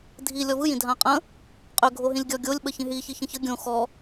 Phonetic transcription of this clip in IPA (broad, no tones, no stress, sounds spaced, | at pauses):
dʱ i lʲ ɔ v ɯ j ĩ dʱ ã qʼ ə̃ | qʼ ø ɡʱ o ɦ ĩ lʲ ɡʲ ɔ ɡʲ o lʲ ɓ ə ç ĩ ɦ i ç i ç ə̃ ç ə ɡʲ õ x ɔ